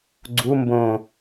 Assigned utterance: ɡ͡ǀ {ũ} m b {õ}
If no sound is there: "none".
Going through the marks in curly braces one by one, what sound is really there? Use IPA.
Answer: u, õ

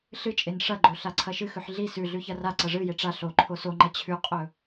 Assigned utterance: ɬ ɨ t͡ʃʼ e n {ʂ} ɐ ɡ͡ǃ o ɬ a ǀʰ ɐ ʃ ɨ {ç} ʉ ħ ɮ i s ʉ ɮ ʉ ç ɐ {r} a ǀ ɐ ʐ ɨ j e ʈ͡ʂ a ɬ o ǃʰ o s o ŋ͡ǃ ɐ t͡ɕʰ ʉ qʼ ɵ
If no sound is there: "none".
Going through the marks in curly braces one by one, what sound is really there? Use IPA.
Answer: ʂ, x, r

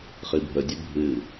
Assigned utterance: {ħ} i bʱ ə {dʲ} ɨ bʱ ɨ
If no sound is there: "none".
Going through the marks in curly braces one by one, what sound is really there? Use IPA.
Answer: χ, dʲ

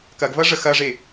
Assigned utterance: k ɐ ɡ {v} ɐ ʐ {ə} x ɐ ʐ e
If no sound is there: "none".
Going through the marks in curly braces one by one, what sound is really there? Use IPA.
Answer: v, ə

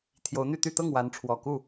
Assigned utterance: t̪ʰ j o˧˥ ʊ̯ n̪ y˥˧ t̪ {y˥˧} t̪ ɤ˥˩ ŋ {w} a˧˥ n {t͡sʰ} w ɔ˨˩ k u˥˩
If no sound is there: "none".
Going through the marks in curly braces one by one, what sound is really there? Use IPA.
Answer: y˥˧, w, ʈ͡ʂʰ

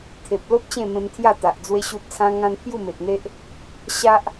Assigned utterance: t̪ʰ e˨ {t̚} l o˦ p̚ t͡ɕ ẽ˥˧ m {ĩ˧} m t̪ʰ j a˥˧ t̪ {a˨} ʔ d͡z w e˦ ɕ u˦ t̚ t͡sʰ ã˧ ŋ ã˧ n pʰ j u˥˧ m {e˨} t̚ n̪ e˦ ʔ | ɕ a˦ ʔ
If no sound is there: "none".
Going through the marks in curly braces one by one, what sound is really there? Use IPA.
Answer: p̚, ẽ˧, a˨, e˨

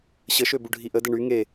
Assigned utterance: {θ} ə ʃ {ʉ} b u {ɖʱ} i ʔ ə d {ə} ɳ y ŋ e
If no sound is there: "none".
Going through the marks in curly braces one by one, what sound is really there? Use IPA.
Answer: ɕ, ø, ɖʱ, ə

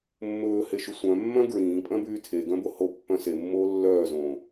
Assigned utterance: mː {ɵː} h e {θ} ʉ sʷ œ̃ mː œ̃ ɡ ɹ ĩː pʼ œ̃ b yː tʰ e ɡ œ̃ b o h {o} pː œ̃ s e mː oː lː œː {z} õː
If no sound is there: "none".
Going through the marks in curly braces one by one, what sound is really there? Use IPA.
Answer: ɵː, ʃ, o, z

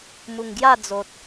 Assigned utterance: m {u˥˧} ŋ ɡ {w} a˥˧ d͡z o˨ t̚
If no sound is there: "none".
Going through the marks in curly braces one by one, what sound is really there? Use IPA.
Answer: u˨˩, j

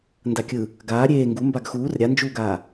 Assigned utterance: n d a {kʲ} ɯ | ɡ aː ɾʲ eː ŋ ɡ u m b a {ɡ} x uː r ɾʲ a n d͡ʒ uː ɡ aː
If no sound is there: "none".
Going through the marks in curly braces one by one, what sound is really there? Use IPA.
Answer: kʲ, ɡ

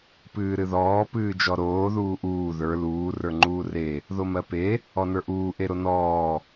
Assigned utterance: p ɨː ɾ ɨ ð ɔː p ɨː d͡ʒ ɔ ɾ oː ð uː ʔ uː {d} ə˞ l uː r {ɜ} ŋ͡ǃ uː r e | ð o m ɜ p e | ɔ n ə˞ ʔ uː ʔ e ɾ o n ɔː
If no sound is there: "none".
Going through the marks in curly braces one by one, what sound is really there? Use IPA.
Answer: ð, ə˞

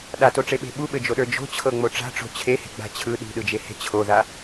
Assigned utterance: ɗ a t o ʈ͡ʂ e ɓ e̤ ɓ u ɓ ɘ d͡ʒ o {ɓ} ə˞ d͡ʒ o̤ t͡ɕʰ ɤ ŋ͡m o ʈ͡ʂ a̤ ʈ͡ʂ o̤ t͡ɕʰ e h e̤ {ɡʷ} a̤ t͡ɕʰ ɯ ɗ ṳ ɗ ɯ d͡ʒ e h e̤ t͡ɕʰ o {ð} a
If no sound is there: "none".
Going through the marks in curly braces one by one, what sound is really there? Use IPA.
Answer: ɗ, ɡ͡b, ð

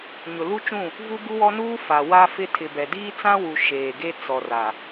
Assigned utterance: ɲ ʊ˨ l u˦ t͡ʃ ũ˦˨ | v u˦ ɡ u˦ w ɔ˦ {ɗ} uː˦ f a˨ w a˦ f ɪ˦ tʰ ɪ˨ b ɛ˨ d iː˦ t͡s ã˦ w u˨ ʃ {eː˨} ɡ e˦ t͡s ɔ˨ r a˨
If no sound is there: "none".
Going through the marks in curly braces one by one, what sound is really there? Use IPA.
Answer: n, eː˨

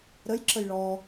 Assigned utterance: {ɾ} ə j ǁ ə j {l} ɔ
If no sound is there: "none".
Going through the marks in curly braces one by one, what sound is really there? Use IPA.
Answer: ɾ, ɭ

